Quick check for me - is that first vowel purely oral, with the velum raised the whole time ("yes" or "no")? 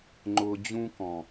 yes